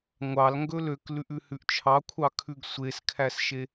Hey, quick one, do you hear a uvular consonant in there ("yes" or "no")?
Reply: no